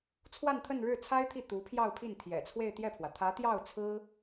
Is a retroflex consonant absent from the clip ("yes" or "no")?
no